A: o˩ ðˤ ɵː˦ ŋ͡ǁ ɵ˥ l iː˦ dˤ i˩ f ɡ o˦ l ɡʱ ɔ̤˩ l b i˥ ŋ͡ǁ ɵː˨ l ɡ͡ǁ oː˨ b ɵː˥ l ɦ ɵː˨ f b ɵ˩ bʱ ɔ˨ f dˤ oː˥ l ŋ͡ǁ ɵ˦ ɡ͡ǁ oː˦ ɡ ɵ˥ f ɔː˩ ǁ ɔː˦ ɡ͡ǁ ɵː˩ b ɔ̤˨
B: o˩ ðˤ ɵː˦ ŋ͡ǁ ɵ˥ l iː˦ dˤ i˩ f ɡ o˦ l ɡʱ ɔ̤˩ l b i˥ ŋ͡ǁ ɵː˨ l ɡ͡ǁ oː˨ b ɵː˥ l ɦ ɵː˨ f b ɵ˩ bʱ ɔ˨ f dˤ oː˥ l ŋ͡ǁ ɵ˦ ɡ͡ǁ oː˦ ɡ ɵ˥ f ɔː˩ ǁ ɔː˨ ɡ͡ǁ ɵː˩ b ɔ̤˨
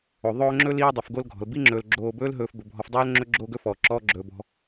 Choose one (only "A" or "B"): A